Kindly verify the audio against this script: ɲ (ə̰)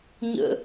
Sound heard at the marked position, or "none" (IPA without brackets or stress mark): ə̰